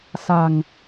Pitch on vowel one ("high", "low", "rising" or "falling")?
low